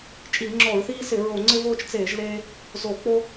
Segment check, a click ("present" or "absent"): present